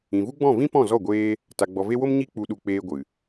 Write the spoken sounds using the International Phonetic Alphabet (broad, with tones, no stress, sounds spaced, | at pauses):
ĩ˨ v u˦ ɡ͡b ɔ̃˦˨ v ĩ˦ p ɔ̃˦˨ z ɔ˦˨ ɡʷ eː˧ | t a˨ ɡ͡b ɔ˨ v e˧ w o˦ m ɲ i˧ k͡p u˨ ɗ u˨ k͡p eː˦ ɡʷ ɨ˨